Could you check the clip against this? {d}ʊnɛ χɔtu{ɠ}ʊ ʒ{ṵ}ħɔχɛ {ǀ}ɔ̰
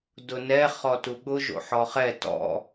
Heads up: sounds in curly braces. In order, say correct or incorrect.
correct, correct, incorrect, incorrect

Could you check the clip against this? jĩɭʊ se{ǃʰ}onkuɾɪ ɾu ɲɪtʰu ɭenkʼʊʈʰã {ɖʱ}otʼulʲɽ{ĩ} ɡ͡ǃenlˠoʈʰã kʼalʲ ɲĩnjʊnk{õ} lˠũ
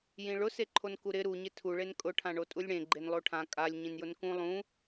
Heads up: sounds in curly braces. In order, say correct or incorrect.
correct, incorrect, incorrect, incorrect

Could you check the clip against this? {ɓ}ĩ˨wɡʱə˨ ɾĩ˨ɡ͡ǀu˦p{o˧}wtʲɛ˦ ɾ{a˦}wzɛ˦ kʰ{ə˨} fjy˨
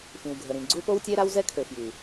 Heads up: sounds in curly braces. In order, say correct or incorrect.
incorrect, incorrect, correct, incorrect

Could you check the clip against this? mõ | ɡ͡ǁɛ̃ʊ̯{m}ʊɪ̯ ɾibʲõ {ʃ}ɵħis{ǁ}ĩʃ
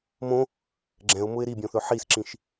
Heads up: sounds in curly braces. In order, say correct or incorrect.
correct, incorrect, correct

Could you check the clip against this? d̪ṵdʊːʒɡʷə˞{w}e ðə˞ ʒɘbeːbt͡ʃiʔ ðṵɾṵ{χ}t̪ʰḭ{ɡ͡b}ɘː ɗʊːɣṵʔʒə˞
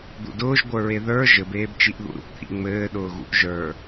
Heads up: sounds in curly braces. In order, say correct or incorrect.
incorrect, incorrect, incorrect

